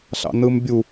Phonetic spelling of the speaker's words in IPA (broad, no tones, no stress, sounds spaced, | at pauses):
ɬ ɑ̰ n ɯ m bʲ u